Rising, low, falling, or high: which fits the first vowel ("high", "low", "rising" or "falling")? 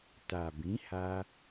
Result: low